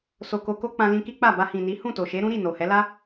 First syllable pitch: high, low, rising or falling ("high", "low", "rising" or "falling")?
low